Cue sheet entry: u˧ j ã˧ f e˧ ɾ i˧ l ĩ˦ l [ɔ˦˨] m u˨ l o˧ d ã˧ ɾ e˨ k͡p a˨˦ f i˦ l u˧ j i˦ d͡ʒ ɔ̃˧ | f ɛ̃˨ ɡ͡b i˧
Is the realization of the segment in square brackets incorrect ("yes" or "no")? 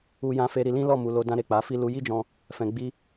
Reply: no